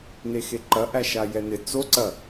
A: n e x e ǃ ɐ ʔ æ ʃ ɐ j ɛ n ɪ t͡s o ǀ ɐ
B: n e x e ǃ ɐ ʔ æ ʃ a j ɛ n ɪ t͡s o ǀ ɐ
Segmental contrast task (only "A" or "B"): B